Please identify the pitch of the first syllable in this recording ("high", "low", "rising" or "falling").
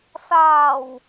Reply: low